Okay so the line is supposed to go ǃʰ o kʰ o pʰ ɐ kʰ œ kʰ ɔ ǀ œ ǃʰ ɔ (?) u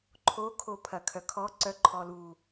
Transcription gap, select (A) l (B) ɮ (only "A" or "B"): A